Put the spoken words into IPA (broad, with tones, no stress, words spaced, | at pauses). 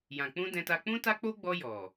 jã˨k͡pũ˧ dɛ̃˧ta˧ k͡pũ˦ta˦k͡po˦ɡ͡bɔ˧ jɔ˨